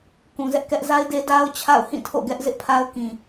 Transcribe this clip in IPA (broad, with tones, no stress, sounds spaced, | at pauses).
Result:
k ũ˨ z ɛ˦ ʔ k ɛ˦ ʔ z a˦ ɪ̯ d e˦ d a˦ ʊ̯ t͡ɕʰ a̰˦˨ ʊ̯ h ĩ˦˨ tʰ o̰˦˨ ɡ ɛ˦ ʔ z ɪ˦ ʔ pʰ a˦ ʊ̯ k ĩ˨